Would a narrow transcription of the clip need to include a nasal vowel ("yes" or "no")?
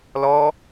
no